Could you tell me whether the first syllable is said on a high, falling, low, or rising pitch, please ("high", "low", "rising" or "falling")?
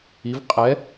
rising